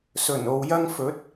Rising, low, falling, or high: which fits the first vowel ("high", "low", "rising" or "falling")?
low